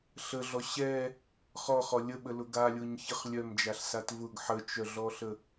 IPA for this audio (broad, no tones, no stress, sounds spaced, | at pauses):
ɬ ə ɮ ɔ ɕ ɛ | χ ɔ χ ɔ lʲ ə ɓ ə l ʊ ɡ a lʲ ʊ ɲ ç ə χ lʲ œ m d͡ʒ a ɬ s a t v ʊ ɡ ħ ə t͡ʃ œ ɮ ɔ ɬ ə